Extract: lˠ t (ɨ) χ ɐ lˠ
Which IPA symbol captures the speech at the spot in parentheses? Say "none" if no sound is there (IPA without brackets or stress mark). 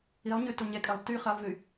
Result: y